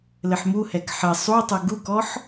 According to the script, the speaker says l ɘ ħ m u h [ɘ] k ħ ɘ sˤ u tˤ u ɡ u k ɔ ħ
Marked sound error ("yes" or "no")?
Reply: yes